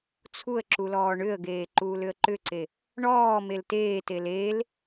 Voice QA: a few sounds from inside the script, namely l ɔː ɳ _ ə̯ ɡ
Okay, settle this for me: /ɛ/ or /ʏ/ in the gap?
ʏ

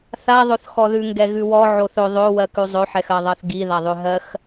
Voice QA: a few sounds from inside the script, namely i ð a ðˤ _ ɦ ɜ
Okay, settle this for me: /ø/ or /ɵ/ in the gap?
ø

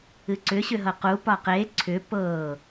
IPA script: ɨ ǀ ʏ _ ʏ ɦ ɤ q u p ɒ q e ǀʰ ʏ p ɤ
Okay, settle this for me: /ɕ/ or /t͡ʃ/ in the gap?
ɕ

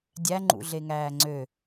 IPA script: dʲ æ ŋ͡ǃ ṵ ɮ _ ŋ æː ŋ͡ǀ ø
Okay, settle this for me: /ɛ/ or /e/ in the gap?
e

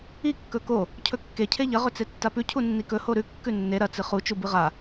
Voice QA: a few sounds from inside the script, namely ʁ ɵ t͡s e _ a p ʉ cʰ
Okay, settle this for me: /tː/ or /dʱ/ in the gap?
tː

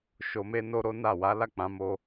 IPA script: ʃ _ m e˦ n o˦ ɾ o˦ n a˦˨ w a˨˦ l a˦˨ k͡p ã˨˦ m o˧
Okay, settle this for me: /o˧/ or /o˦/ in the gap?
o˧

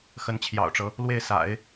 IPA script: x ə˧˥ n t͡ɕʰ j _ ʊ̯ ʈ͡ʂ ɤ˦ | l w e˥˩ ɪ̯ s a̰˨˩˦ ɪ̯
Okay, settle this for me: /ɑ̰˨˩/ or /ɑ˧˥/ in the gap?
ɑ̰˨˩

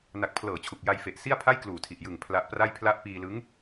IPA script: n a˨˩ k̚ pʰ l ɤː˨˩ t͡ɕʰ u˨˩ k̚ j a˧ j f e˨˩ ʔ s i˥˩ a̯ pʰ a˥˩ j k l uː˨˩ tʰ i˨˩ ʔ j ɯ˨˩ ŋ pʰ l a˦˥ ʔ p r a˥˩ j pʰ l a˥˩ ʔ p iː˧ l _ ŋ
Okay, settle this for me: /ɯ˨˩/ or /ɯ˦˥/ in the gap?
ɯ˦˥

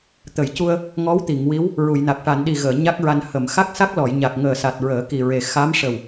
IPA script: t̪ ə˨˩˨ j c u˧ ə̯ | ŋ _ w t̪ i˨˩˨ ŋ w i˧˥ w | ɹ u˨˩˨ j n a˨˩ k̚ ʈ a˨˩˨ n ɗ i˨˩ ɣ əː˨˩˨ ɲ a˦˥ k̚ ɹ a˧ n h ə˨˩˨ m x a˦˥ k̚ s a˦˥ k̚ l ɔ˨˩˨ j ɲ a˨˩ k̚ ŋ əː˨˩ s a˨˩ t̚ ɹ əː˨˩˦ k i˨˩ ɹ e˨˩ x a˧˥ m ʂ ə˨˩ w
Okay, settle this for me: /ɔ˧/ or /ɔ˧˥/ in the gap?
ɔ˧˥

